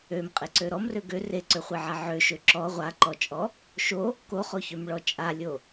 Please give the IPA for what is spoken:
ø m qʼ e ǀ ø ɾ ɔ m r ø ɡ ø r e ǀ ø χʷ e ʕ a ʕ ø ʃ ø ǁ ɔ ʁʷ a ǃ ɔ t͡ʃʼ ɔ | ʃ o | k o χ o ç ø m ɭ ɔ t͡ʃʼ a lʲ o

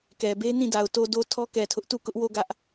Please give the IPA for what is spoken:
k ɛ˨ b e˦ n ĩ˦˨ d a˨ ʊ̯ t o˨ d o˨ tʰ ɔ˦ k ɛ˨ tʰ ʊ˦ ʔ t u˦˨ k ʊ˦ ʔ w o˦˨ ɡ ä˦ ʔ

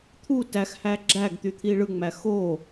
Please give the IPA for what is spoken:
t̪ʰ u t æ x h æ ɡ͡ǁ æ ɡ t̪ y t̪ʰ i ɭ ɯ ŋ͡m æ x o

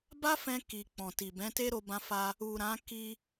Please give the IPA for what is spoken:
b a˦ f ɛ̃˧ k i˨ k͡p ɔ̃˨ t i˨ b ɛ̃˨˦ t e˦ ɾ o˧ b ã˧ f a˧ | u˨ ɾ ã˨˦ k i˧

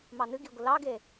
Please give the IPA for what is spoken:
m ɑ n ɨ ɡ i ɡʷ ə l ɑ ɡ e

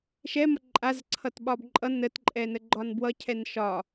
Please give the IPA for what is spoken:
ʃ ɛ m ʌ ǃʼ a z ǀʰ ʌ t ɓ ɒ b ǃʼ ʌ n ə t ǃʼ ɛ n ə ɡ͡ǃ ɒ n b w ʌ cʰ ɛ n ʃ ɒ

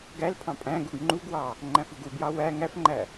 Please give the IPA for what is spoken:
ɡ æ l pʰ ɑ̃ pʼ æ̃ ɡ u ɡ ŋ͡ǃ u ɡ w ɑ | ŋ͡ǃ æ̃ f ɯ ɡ u b j ɑ w æ ŋ æ f ŋ͡ǃ æ

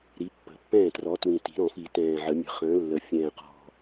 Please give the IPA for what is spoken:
ɾ i˨˥ pː ə̤˨˩˦ pː ɛ̃ː˥˩ t r ɔ˨˥ t w ĩ˨˩ t i̤˨˩˦ ɾ ɔ̃˨˩˦ f i˨˩˦ t ɛ̃ː˨˩ ʕ ə˨˩˦ mʲ ə̤˨˩ χ ə̃ː˨˥ lː ə˨˩ fʲ ɛ̃ː˨˩ q ɔ̤˨˩

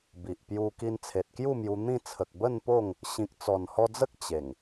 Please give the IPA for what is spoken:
b i˨ ʔ p j u˧ k i˧ n t͡sʰ e˨ t̚ k j u˥˧ m j u˧ n̪ ĩ˥˧ t͡sʰ ə˨ k̚ b ə˥˧ n p o˥˧ ŋ | ɕ ĩ˨ k̚ t͡s ɔ˨˩ n h ɔ˧ d͡z ə˦ k̚ t͡ɕ e˨˩ ŋ

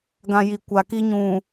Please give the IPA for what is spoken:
ɡ ã˨ j i˨ kʷ a˨ k i˦ ɲ ũ˨

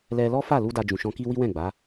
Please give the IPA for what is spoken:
l ɛ˧ l ɔ˦ f a˦˨ l u˧ d a˧ d͡ʒ ũ˨ ʃ ɔ̃˧ k i˦ w i˦ w ɛ̃˦˨ ɡ͡b a˨˦

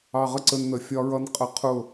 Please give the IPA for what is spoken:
ɑ˧ ʁ ə˥˩ ǀ ə˧ n n̪ ə˩ fʲ ɒ˧ ɹ ʌ˧ n qʼ ʌ˧ qʰ ʊ˥˩

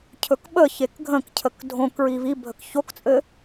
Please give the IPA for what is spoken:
cʰ ɵ k ɓ ə ç e k ɡʱ ə̃ k cʰ ə k dʱ õ k ɹ i β i bʱ ə k ç o k t͡sʼ ɘ

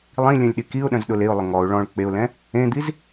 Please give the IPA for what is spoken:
lˠ ĩ lʲ œ̃ lʲ ɗ i k i ʊ̯ ɗ œ̃ z ɗ ʊ l e ʊ̯ lˠ ʊ ŋ ɔ ʊ̯ ɭ ɔ̃ ɭ k͡p e ʊ̯ l ɛ̃ | ẽ d̪ i z

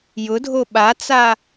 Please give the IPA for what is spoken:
j ʊ dʱ o ɓ a t͡s a

